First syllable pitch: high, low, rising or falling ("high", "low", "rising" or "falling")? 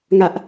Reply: high